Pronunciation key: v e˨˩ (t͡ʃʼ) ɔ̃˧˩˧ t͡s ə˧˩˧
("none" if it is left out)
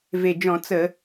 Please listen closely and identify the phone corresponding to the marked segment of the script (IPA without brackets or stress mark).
d͡ʒ